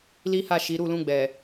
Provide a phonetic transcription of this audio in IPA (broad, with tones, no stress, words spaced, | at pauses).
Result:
li˦ha˦˨ʃi˨˦ ɾu˦˨lũ˧ɡ͡bɛ˨